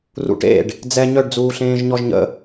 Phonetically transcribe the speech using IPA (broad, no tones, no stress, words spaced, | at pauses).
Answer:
rṵʈḛɖ | d͡zɛ ɲœɖd͡zuːɬẽːʒ ɲɔʒɲə̰